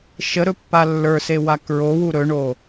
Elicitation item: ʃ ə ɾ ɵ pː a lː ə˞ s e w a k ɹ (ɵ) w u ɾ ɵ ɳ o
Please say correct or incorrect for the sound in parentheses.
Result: incorrect